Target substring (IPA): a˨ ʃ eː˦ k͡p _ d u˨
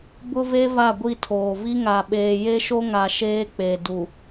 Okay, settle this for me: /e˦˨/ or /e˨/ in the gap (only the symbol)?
e˨